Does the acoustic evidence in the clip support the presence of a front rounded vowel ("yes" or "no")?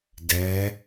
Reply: no